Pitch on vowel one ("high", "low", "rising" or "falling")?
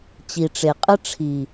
low